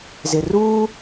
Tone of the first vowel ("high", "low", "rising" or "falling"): low